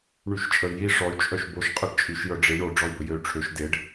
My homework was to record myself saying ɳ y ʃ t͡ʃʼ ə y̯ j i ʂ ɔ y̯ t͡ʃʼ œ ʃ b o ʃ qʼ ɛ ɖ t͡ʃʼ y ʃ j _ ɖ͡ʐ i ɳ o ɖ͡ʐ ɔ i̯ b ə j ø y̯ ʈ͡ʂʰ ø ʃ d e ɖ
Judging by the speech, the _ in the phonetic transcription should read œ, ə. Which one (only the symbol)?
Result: œ